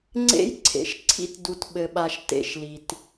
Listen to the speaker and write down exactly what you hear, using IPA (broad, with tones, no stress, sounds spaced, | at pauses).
ŋ͡ǀ ḛ˦ j ǀʰ ḛ˨ ʃ ǀʰ ḭ˦ t d u˨ t ɓ ɘ˨ ɓ a˨ ʃ t ḛ˦ ʃ l i˨ t